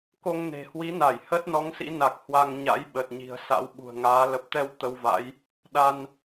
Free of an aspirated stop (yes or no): yes